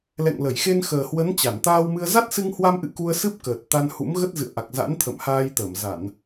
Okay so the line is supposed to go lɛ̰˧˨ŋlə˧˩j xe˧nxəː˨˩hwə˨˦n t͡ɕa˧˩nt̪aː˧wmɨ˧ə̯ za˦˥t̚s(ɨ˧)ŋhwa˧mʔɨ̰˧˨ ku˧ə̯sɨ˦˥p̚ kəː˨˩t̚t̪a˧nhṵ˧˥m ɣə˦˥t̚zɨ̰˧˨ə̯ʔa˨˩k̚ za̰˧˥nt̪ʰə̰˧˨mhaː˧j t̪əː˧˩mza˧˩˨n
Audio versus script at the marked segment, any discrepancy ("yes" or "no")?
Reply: no